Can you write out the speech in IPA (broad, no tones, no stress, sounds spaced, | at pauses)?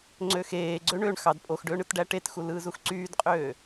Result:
ŋ͡ǀ ø x eː ɡ͡ǀ ø ɳ ø ɳ x ɑ d pʼ o x ɖ øː ɳ ɯ t ɖ æ ʈ e t x u l ɯː z u x ǀ yː d qʼ øː